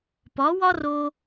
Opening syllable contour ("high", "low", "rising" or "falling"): rising